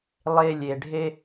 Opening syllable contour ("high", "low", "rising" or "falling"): high